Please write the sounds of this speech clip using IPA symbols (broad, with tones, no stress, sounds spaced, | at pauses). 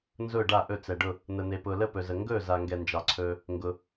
n z ʊː˧˩ ɖ a˧˩ ʔ ɵ˧˩ t͡s ɛ˩ ɖ ʊ˧˩ | n̪ ə˩ n̪ e˩ p ʊː˩ l ə˧˩ p ɵ˩ z ə˩ ŋ ɡ ɵː˧˩ z a˩ ŋ ɡ ɛ˩ n d͡ʒ ɑ˩ ǀʰ ɵː˩ | ŋ ɡ ʊ˩